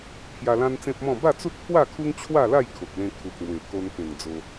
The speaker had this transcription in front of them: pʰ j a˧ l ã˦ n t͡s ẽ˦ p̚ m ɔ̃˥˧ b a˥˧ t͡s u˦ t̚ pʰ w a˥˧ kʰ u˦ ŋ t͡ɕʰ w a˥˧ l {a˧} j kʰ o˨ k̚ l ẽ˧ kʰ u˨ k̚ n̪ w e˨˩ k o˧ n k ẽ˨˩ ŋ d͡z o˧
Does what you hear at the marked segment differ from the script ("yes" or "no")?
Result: yes